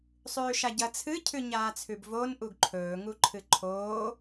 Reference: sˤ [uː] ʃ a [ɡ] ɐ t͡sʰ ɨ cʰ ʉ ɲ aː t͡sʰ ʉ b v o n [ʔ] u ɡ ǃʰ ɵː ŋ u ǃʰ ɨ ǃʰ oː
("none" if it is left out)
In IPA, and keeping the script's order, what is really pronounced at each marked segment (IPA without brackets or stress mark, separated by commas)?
ʉː, ɟ, ʔ